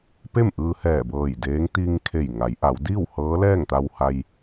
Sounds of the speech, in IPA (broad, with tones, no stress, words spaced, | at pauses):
pe˥˨mʔɯː˧hɛː˧˩bɤː˧˩j deː˧˥ŋ t̪i˧ŋkʰe˧˩j ŋa˩˧jʔa˩˧wdiː˥˨w hɤː˧˥lɛː˥˨ŋt̪a˧wha˧j